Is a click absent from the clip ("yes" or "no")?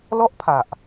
yes